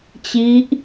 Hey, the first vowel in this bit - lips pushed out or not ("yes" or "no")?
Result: no